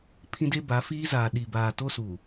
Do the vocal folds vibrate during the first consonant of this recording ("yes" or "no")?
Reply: no